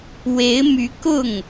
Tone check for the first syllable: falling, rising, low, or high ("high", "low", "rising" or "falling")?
rising